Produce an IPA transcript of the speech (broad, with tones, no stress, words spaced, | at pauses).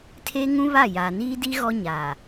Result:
tʰe˦ ŋũ˦βa˦˨ jaː˨niː˦di˦ ɣɔ˦ɲaː˨